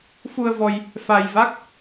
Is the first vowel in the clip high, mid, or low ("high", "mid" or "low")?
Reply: high